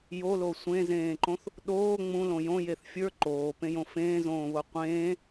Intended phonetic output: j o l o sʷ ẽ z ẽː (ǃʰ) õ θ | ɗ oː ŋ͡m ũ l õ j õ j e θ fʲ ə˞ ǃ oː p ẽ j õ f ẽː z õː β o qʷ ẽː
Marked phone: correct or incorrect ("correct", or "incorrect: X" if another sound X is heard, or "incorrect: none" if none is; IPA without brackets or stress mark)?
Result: incorrect: ǃ